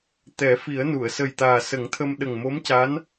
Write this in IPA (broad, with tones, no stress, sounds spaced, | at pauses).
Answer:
t̪ ɛ˨˩˦ f i˨˩˦ ə̯ n u˨˩˨ ə̯ s ə˨˩ j t̪ aː˨˩ s ə˨˩˦ ŋ t̪ʰ ə˧ m ɗ ə˨˩ ŋ m o˧˥ m c a˧˥ n